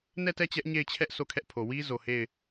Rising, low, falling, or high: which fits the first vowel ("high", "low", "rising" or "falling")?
falling